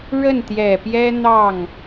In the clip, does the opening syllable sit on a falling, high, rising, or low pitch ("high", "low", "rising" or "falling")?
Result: falling